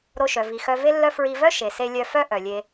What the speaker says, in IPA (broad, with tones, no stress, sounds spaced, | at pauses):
ɾ o˧ ʃ œ˨ v i˨ x œ˧ v e˦ lː œ˦ f ɹ i˧ v œ˦ ʃ e˨ s e˧ lʲ œ˧ f œ˦ ʔ œ˨ lʲ e˧